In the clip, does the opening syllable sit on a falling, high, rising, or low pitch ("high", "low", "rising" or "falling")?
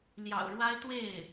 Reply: low